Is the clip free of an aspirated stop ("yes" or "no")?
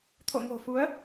no